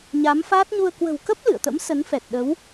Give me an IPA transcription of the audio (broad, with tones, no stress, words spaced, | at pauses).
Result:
ɲa˨˦mfaː˦˥t̚ ɲu˧ə̯ kwə̤˨˩wkə˦˥p̚ lɨ̰˧˨ə̯t̪ə̰˧˥m sə˨˦nfɛ˨˩t̚ ɗə˨˦w